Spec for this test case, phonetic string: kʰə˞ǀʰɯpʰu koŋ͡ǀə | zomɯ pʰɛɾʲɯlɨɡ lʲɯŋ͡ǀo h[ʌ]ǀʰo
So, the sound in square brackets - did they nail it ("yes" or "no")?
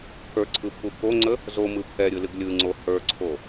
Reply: no